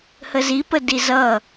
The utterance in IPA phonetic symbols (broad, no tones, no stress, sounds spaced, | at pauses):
h ə z i p ə d i z ʌ